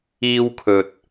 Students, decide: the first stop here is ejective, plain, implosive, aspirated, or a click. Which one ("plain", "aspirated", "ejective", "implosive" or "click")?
aspirated